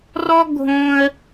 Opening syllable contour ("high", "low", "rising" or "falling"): high